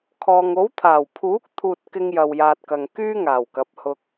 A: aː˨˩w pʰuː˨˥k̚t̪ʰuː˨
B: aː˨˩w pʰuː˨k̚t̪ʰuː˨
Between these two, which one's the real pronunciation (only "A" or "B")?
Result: A